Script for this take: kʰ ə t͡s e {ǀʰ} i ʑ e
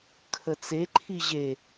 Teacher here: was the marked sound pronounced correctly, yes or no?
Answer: no